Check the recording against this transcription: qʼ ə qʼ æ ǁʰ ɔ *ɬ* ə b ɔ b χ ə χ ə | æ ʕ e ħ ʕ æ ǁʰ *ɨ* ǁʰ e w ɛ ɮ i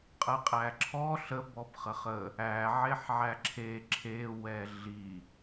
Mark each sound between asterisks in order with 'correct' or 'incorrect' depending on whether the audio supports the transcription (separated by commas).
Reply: correct, incorrect